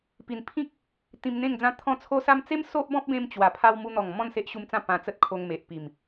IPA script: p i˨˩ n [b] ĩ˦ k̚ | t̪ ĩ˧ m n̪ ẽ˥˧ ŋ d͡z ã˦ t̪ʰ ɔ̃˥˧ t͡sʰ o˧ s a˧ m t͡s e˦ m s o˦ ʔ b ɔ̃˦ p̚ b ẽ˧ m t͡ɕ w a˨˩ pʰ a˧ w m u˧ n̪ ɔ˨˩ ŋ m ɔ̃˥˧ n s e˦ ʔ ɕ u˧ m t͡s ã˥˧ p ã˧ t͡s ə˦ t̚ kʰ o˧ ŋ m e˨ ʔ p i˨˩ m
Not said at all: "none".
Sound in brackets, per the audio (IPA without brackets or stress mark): pʰ